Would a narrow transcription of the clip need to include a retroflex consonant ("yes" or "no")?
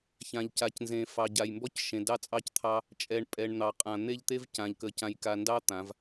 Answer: yes